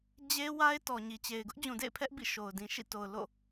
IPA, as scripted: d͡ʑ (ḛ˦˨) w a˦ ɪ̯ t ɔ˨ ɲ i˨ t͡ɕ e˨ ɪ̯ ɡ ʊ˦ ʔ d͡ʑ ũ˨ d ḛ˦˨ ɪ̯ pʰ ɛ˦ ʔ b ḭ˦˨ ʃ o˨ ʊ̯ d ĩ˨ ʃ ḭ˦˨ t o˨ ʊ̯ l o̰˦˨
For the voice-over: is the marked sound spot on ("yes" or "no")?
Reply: no